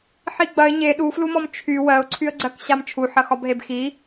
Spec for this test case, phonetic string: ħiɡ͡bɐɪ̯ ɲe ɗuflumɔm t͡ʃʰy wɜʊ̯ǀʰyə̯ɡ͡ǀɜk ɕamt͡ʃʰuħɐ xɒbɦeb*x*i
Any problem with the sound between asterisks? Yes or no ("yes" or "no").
no